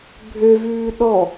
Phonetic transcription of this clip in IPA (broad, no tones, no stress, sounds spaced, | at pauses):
bʱ ø v ʉː ɗ ɔ